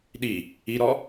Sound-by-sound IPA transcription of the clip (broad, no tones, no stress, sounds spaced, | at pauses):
ɗ i | i ɾ ɔ